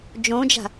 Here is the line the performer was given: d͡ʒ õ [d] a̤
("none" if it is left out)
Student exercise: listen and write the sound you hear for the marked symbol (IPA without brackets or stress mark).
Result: d͡ʒ